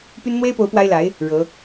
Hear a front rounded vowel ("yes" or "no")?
yes